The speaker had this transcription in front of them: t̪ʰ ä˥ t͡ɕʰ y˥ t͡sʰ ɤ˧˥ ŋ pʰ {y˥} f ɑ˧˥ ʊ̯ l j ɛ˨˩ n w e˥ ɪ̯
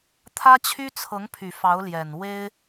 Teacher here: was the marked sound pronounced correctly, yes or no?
no